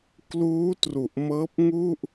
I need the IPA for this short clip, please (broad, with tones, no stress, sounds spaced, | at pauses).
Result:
k l uː˦˥ t r u˨˩ ʔ m ɤː˦˥ p̚ ŋ u˥˩ ʔ